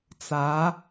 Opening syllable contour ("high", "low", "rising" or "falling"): rising